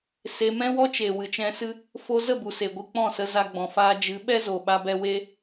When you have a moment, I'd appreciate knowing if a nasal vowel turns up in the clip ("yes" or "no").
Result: yes